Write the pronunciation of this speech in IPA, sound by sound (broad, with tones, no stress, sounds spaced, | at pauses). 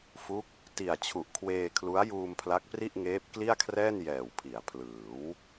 f u˦˥ k̚ | t i˨˩ a̯ t͡ɕʰ u˨˩ ʔ kʰ w eː˧ kʰ l u˦˥ a̯ j uː˧ m pʰ l a˦˥ k̚ p r i˥˩ ʔ ŋ eː˦˥ p̚ k l i˥˩ a̯ kʰ r ɛː˥˩ n j ɛː˨˩ w pʰ i˩˦ a̯ pʰ l ɯː˩˦ w